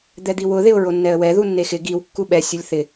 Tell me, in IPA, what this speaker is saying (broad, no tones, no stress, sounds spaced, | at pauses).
d̪ ɛ d̪ i w ʊ ð ɪ ʊ̯ ɹ o nː ɛ ə̯ w ɛ ð u nː e x ɪ ɡ i w kː u ɓ ɛ sʲ ʊ lʲ θ ɪ